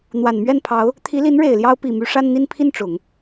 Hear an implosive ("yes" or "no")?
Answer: no